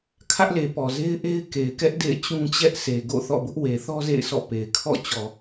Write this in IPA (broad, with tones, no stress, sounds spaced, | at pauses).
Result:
kʰ ä˦ ʔ l e˨ p ɔ˨ z e˦ ɪ̯ ʔ e˦ ɪ̯ k e˨ ɪ̯ k ɛ˦ ʔ d ḛ˦˨ ɪ̯ t͡ɕ ũ˦ t͡ɕ ɛ˦ ʔ sʰ e˨ ɡ o̰˦˨ θ ɔ̰˦˨ b ʊ˦ ʔ w e˨ θ ɔ˦ z ḛ˦˨ ɪ̯ s ɔ̰˦˨ p e˨ ɪ̯ kʰ ɔ̰˦˨ t͡ɕ ɔ˨